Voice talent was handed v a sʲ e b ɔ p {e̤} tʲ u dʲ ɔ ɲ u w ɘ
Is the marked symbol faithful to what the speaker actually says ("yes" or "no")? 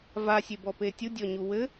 no